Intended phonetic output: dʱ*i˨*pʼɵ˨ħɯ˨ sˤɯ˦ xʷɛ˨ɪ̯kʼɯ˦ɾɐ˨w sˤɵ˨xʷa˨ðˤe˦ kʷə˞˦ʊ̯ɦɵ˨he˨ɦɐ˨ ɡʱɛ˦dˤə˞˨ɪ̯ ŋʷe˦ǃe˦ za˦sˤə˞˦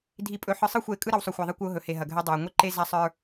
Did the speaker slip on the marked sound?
no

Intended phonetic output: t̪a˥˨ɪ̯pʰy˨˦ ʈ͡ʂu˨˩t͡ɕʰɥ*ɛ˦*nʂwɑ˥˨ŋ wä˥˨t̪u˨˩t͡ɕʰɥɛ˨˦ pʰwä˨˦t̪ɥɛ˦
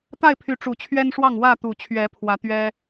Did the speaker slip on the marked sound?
no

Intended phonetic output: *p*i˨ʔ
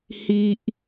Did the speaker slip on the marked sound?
yes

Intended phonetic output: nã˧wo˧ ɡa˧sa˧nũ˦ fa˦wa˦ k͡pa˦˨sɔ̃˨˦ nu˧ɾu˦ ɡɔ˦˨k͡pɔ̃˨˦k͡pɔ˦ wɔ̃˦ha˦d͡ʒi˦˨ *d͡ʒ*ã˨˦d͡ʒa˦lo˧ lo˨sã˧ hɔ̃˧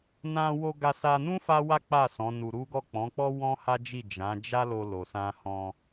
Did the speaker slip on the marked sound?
no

